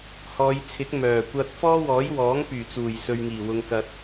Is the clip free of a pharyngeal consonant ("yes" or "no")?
yes